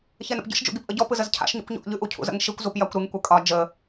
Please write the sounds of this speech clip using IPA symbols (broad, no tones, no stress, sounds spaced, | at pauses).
ç ɛ n ə̰ p ɟ ə̰ ʃ d͡ʒ ṵ ɡ i p ʔ ə ɟ ɔ p ɯ z ə z cʰ a̰ ʃ ɲ ṵ kʷ ɲ ɔ̰ ʔ ʎ ʉ ʔ u cʰ ṵ z ə̰ ŋ ʃ i kʷ z u p j a kʷ ɾ ɨ ŋ kʷ ɛ kʼ ɒ d͡ʒ ə